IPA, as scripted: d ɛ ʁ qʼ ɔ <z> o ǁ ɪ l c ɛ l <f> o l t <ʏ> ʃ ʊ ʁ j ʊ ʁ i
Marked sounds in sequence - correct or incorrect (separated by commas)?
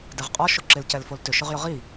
incorrect, correct, correct